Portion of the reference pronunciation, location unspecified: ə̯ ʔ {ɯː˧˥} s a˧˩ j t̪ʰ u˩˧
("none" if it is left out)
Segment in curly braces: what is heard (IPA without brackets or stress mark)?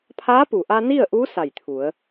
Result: uː˧˥